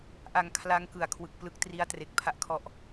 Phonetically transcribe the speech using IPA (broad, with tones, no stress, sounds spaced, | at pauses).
ʔ a˨˩ ŋ kʰ l a˦˥ ŋ k ɯ˨˩ a̯ kʰ w ɯ˨˩ k̚ p l ɯ˦˥ k̚ t r i˥˩ a̯ t r e˦˥ k̚ pʰ a˥˩ ʔ kʰ ɔ˥˩ ʔ